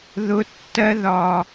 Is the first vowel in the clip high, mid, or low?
high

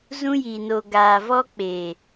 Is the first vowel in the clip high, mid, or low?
high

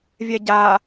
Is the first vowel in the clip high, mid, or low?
mid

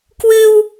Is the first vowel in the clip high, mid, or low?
high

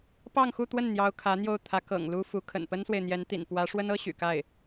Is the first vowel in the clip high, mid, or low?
low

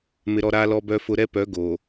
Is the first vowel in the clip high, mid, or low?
high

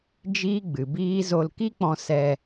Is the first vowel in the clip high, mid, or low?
high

